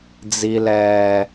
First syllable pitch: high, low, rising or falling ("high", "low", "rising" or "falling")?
low